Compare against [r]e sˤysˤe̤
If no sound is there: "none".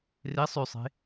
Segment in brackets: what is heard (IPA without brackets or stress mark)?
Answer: r